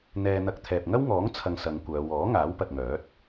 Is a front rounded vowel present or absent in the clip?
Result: present